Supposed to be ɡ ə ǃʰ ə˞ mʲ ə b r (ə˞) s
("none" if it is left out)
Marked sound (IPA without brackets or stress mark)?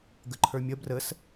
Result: ə